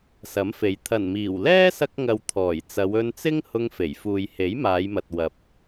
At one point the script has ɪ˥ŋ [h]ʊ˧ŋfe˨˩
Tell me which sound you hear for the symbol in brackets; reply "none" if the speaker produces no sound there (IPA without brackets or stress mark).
h